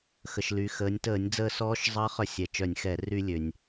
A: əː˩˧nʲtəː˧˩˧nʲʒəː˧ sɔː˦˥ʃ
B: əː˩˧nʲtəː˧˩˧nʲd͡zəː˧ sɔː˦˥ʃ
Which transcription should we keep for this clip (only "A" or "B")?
B